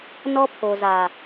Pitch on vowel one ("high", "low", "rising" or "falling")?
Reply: high